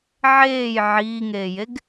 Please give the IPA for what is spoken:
ʕ eː j ʕ iː ŋ eː j e ɡ

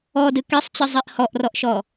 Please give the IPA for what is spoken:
ɔ d ɨ k e sˤ t͡ɕ ɨ zˤ e ʔ h ɔ ʔ r ɔ ʔ ʃ ɔ

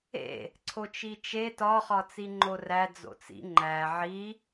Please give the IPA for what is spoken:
ḛ | ǀʰ o t͡ʃ i t͡ʃ e t ɒ χ ɒ t͡s i ŋ͡ǃ o r æ d͡z o̰ t͡s ḭ ŋ͡ǃ æ ʕ i

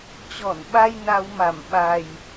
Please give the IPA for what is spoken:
t͡ɕ ɔ˧˩ n ɓ a˧ j n a˧ w m a˧˩ m ɓ a˨˩ j

